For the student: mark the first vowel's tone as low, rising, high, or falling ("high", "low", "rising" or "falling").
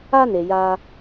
high